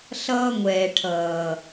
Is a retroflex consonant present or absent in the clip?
present